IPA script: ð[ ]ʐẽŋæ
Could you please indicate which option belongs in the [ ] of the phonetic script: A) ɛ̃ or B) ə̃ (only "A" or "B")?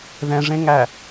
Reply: A